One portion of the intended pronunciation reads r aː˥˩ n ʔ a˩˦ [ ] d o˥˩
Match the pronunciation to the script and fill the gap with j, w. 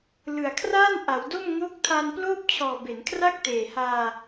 w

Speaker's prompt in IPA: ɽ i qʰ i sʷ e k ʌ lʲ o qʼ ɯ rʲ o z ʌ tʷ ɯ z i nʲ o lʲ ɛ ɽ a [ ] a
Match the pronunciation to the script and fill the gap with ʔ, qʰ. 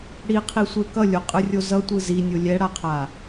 qʰ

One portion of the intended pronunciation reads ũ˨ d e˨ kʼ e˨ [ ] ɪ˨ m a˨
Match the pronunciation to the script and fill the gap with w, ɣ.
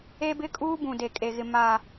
ɣ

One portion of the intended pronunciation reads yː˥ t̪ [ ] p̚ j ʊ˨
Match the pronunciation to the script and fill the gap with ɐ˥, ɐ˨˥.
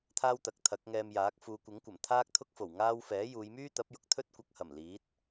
ɐ˨˥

